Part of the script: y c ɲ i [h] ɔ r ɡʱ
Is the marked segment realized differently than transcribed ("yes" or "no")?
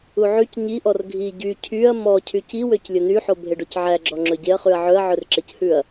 yes